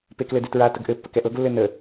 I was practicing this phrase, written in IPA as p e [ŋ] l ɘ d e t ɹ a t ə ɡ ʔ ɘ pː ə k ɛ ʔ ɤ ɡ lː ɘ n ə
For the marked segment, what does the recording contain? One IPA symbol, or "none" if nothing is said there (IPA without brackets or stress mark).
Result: k